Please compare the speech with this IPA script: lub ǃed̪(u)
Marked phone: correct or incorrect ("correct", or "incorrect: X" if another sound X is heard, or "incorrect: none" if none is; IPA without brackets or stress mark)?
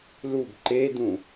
incorrect: ũ